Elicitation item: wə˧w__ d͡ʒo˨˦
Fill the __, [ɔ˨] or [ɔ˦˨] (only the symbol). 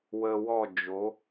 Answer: ɔ˦˨